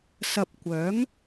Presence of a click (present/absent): absent